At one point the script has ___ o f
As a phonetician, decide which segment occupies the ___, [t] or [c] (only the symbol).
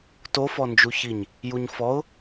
t